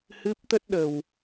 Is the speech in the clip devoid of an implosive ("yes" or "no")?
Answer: no